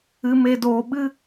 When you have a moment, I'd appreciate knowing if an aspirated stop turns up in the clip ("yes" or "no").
no